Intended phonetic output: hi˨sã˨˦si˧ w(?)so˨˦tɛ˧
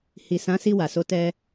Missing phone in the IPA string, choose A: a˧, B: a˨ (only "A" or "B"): B